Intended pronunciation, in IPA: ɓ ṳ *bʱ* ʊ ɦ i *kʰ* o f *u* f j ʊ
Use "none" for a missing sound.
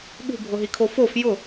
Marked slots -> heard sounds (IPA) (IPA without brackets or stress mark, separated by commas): bʱ, kʰ, o